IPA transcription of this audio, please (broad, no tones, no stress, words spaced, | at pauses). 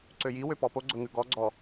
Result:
ǀøji wøpɔpo ɡ͡ǀɵŋʉɡɔ ɡ͡ǀɔ